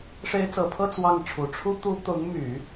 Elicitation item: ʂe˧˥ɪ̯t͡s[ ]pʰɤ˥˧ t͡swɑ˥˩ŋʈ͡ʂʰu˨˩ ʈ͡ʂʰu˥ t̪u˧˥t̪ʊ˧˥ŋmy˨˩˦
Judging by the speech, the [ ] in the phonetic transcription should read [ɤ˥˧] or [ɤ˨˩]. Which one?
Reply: ɤ˨˩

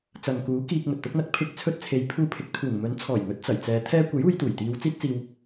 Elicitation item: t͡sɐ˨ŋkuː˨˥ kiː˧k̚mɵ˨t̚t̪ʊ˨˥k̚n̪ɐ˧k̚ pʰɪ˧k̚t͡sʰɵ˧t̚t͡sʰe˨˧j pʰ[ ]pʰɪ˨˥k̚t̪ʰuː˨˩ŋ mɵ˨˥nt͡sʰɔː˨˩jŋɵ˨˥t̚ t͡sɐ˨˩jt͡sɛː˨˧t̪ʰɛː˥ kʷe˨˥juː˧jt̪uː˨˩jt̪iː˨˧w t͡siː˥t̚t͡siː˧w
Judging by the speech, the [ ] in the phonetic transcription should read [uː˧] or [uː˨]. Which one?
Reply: uː˧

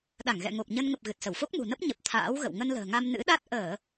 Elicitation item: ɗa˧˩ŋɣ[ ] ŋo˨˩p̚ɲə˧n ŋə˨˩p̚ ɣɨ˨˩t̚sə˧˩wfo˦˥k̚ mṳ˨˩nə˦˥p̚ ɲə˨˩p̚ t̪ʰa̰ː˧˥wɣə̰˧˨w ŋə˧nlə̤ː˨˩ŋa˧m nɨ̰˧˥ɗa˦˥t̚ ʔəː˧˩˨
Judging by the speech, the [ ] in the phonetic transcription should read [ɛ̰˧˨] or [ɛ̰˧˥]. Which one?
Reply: ɛ̰˧˨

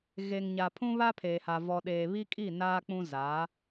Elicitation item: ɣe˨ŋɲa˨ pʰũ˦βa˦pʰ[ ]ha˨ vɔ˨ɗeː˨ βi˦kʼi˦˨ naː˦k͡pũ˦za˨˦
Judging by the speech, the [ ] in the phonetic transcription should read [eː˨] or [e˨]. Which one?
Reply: eː˨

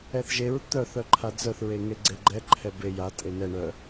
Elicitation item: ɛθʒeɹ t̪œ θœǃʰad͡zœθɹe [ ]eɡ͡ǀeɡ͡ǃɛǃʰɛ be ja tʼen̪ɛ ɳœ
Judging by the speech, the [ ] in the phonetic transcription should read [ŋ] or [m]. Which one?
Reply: ŋ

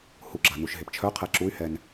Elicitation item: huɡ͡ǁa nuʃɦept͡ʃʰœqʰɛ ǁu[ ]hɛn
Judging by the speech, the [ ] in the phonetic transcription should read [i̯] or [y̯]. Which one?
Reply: y̯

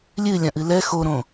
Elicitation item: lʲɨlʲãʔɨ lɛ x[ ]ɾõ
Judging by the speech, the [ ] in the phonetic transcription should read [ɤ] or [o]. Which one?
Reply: o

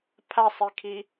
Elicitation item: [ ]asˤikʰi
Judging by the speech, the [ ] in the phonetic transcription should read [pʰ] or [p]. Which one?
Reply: pʰ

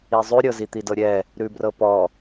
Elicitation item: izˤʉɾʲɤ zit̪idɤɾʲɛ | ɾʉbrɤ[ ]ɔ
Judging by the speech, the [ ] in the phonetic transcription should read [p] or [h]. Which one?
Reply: p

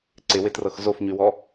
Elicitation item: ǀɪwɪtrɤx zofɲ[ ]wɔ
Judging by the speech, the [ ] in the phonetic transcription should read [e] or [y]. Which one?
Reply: y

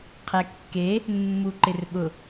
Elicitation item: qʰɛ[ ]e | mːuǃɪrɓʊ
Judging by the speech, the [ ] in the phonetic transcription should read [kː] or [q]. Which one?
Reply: kː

